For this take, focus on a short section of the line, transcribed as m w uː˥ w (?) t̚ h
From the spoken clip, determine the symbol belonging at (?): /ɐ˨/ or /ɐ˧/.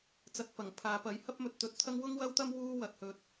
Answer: ɐ˨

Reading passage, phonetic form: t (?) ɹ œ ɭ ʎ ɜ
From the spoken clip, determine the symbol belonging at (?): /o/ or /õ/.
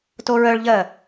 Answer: o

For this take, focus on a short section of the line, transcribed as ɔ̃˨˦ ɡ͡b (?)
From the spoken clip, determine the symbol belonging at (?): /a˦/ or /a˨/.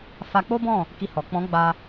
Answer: a˦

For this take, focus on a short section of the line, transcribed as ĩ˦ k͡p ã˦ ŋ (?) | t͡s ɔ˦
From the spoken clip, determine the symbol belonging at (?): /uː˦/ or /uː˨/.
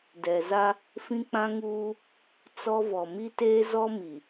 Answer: uː˦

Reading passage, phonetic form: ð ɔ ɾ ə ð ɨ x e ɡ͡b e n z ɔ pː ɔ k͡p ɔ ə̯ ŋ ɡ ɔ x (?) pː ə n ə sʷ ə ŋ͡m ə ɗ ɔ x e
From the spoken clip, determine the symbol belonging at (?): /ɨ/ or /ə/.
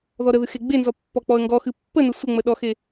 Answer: ɨ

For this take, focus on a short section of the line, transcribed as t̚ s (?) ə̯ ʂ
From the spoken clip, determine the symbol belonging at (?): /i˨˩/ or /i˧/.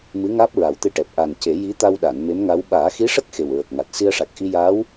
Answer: i˧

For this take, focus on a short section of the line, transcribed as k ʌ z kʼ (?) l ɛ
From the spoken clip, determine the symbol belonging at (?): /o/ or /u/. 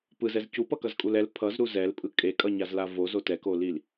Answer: u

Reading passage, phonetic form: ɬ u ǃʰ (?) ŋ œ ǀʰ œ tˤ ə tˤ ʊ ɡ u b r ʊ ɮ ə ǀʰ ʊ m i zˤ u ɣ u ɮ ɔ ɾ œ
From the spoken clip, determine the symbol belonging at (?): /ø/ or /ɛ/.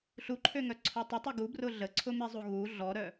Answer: ø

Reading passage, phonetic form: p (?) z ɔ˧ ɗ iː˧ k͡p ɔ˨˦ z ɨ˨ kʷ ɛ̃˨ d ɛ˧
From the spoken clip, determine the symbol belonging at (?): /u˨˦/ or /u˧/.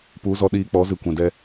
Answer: u˨˦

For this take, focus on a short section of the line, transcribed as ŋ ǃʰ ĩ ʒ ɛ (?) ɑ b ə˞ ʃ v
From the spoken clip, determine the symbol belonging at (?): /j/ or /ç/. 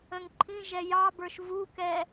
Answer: j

